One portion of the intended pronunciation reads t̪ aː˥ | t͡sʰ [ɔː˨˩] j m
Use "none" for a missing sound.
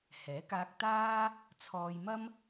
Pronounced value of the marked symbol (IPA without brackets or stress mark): ɔː˧